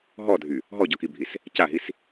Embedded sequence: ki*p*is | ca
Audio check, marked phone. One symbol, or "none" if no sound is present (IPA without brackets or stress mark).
bʱ